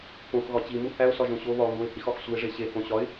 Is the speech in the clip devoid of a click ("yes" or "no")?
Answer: yes